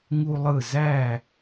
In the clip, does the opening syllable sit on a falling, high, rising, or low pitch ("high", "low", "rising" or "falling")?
high